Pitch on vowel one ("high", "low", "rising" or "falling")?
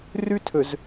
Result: high